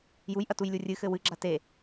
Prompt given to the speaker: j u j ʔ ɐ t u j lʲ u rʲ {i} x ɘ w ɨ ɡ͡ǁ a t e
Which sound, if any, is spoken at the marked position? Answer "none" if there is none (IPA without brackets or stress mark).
ɨ